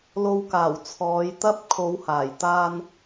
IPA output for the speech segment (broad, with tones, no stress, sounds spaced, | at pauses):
l o˨˧ w k aː˨˩ w t͡sʰ ɔː˨˧ j t̪ ɐ˥ p̚ kʰ o˨˧ w h aː˨˩ j t̪ aː˧ n